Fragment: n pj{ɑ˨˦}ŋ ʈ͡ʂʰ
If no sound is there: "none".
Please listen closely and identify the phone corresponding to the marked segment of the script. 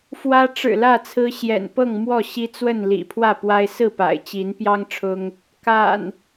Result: ɑ˦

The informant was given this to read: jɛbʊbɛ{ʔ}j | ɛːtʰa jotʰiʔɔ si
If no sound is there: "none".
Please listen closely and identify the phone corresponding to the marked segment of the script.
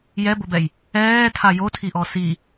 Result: none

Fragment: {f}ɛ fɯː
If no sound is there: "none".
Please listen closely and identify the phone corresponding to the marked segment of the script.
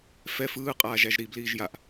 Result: f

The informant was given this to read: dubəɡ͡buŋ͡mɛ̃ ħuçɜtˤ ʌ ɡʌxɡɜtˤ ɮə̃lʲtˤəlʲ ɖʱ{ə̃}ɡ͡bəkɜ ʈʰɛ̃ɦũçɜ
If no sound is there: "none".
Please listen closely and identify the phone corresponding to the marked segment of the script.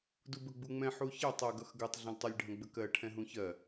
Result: ə̃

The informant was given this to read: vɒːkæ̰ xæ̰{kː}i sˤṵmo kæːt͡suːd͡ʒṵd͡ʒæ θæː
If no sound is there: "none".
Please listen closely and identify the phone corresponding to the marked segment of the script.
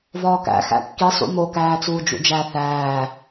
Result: kː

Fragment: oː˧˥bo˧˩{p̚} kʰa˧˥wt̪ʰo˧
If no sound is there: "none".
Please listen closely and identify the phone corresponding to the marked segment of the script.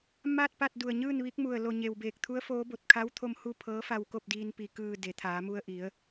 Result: t̚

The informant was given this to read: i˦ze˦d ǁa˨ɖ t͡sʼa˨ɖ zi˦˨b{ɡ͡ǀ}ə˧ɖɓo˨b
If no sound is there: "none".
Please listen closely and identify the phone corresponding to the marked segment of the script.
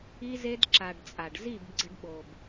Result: ɡ͡ǀ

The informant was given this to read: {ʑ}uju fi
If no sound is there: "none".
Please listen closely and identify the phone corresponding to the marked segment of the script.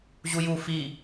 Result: ʑ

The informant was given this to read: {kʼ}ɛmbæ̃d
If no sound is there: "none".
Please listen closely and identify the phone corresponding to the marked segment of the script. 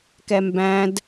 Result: k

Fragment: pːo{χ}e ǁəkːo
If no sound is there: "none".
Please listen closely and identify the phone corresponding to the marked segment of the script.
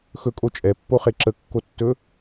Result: χ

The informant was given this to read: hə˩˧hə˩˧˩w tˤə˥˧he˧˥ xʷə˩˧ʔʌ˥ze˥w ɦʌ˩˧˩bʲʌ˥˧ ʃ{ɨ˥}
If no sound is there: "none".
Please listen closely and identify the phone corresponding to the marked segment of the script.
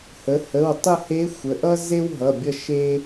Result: e˥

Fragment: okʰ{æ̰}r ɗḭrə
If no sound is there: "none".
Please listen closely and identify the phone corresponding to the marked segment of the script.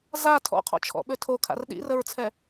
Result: a̰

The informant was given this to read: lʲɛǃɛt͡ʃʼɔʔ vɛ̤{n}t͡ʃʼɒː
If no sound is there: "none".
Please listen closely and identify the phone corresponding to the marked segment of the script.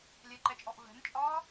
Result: n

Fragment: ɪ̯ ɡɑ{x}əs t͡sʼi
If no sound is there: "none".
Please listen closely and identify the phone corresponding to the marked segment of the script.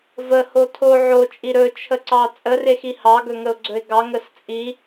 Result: ŋ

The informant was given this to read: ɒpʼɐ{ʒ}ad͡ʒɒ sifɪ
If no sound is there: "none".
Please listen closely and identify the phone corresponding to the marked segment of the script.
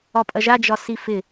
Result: ʒ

